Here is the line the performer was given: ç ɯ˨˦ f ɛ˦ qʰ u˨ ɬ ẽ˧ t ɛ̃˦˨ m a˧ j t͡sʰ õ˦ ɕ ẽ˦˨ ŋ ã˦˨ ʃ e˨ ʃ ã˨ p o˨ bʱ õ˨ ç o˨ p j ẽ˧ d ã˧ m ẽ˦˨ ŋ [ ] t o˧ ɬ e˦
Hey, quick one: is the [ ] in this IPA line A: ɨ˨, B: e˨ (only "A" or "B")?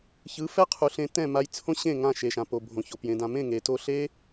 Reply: B